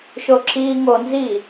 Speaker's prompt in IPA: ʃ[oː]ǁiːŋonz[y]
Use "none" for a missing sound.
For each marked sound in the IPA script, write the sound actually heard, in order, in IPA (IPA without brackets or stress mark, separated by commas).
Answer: o, i